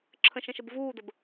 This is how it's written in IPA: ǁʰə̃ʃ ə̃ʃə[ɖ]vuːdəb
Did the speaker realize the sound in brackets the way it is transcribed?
no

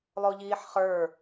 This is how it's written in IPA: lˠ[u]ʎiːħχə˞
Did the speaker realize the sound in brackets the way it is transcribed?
no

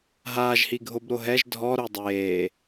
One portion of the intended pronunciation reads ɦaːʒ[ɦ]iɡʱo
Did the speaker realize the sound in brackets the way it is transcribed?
no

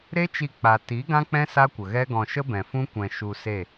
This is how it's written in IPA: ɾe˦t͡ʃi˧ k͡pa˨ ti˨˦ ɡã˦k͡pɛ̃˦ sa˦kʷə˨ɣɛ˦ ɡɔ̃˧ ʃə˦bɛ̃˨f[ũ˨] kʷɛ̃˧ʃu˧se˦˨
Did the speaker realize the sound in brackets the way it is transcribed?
no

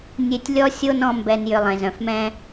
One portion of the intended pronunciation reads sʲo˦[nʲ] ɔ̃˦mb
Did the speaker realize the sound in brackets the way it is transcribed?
no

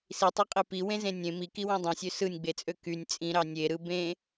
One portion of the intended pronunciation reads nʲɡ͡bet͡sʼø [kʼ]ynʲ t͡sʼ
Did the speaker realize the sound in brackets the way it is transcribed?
no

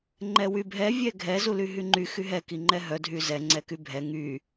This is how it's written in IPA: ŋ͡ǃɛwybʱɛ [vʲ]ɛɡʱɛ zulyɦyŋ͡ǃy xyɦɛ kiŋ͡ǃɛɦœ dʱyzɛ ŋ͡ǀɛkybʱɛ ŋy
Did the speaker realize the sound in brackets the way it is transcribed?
yes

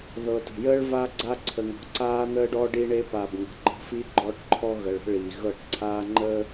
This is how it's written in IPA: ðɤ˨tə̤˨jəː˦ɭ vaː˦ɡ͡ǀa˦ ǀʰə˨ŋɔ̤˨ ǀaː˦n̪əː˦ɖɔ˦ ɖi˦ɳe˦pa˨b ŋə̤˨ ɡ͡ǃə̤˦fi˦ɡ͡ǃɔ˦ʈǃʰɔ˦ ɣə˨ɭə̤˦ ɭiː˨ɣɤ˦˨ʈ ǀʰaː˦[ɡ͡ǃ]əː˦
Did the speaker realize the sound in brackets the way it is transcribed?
no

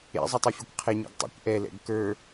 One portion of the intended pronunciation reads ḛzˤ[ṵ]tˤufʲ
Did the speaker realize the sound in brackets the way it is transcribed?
no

